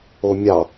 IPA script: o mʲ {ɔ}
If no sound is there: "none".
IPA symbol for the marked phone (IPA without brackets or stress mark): ɑ